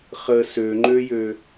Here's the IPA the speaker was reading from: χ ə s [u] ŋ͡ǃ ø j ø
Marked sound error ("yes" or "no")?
yes